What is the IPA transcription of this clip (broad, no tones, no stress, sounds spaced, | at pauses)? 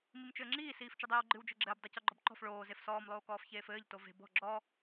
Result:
m i m t͡ʃ ɘː ŋ͡ǁ iː s iː f t͡ʃ ɨ dˤ iː w ɡ͡ǃ ɨ w d͡ʒ ɘ ɡ͡ǁ ɘː b dˤ i c ɔ ɡ͡ǃ ɔ b ǃ ɔ̤ f ɭ oː z e f s ɔː m lˠ oː k ɔː f ç eː f ɘː ʎ t o v e̤ b ɔ̤ ɡ͡ǁ ɔ